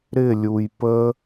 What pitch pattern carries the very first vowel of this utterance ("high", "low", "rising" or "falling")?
falling